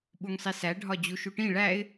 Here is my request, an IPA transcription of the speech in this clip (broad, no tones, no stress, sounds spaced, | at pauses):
ɓ u ŋ sˤ i s æ ɖʱ ɒ d͡ʑ u ʃ u ʈ ĩ ɭ æ ɪ̯